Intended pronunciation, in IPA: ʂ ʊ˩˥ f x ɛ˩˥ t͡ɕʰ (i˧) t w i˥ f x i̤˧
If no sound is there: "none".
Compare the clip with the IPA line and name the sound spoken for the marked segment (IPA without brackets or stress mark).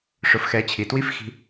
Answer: i˩